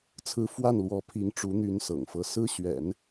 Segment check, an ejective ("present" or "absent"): absent